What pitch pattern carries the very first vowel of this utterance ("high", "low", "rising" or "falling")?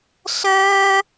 high